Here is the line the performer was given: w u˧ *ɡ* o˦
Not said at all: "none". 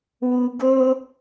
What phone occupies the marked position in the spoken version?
ɡ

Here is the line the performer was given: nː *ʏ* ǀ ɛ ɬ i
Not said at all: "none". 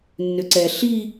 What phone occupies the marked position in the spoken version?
ʏ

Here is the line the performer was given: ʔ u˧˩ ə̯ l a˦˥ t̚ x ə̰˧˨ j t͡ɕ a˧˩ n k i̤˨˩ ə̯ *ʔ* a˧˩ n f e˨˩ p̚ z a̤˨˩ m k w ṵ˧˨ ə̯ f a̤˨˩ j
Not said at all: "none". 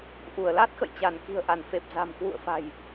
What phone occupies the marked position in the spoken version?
ʔ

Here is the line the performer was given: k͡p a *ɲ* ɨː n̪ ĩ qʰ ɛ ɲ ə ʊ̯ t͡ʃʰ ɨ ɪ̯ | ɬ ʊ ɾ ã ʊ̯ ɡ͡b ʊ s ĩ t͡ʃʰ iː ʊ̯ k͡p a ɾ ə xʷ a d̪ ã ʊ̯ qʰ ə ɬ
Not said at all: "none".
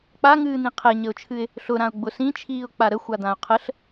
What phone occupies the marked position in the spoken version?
ŋ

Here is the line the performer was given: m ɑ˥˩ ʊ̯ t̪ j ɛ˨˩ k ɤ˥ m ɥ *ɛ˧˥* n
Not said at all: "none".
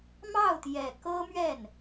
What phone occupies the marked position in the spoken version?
ɛ˥˩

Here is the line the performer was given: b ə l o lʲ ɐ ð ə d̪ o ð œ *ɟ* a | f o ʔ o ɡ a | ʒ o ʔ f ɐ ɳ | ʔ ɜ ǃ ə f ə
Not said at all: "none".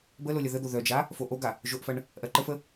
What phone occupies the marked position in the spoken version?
d͡ʒ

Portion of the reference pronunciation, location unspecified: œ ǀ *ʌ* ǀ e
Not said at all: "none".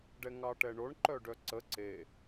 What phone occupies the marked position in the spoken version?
ə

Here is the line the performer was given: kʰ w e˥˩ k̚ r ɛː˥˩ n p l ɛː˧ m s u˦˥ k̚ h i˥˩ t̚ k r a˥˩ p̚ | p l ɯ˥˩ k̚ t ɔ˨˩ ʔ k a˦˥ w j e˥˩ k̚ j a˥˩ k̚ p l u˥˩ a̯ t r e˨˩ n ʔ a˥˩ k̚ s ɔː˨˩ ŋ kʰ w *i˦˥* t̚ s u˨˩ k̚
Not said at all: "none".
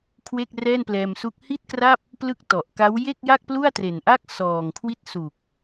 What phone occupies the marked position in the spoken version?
i˦˥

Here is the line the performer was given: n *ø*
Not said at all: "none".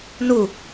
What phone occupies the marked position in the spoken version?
u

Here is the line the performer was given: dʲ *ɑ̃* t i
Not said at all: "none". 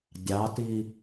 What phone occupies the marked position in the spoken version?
ɑ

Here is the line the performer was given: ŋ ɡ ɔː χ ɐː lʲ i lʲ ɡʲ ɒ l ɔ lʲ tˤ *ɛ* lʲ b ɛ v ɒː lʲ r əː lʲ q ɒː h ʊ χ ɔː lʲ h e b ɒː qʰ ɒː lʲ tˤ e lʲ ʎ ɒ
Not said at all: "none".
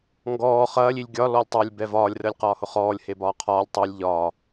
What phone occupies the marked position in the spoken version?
ɛ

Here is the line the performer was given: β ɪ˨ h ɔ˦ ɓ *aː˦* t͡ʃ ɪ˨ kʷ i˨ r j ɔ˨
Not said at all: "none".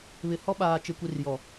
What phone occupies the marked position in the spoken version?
aː˨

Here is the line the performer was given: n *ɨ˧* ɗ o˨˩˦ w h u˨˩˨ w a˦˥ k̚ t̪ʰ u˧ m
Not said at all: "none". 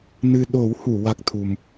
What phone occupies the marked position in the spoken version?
ɨ˧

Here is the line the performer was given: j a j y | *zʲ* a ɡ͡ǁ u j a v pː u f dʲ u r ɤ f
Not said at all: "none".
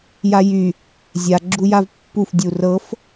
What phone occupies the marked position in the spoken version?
zʲ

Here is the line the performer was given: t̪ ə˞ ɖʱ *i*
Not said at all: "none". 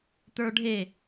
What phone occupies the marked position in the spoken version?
e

